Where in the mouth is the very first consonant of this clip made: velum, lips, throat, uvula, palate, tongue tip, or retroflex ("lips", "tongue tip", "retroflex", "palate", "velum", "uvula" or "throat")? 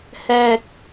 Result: throat